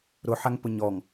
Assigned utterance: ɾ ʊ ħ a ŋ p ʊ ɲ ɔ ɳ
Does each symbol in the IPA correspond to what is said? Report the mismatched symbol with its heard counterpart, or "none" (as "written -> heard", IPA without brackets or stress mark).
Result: ɳ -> ŋ